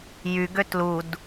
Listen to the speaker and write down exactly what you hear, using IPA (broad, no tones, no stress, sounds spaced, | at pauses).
j y ɡ ø t l u d